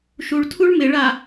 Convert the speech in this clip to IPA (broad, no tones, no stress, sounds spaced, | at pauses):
ʃ u ɭ tʰ u ɭ m ɪ ɭ a